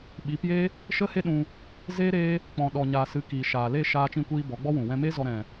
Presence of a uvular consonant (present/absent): absent